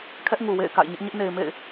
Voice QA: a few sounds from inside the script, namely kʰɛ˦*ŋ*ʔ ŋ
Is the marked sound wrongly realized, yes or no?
yes